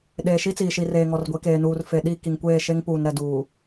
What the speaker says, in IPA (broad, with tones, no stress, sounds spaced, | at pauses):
ɗ eː˨ ʃ i˦ t͡s iː˨ ʃ i˨ r eː˨ ŋ ɔ˨ r ɡʷ e˨˦ k eː˨ n uː˨ r f e˨ ɗ i˦˨ k i˨ ŋ kʷ eː˦˨ ʃ e˦ ŋ p uː˨ n ɾ ɛ˨ d uː˨